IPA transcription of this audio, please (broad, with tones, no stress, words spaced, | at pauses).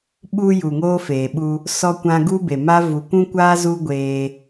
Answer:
ɓu˧ ju˨ŋoː˦feː˨ ɓu˧ | sɔ˦kʷã˦ ɡu˦be˨ma˦ vu˨ kʷũ˦kʷaː˦ zu˦ɡʷeː˧